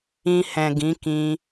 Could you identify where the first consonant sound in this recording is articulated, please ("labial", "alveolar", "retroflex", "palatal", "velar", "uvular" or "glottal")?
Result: glottal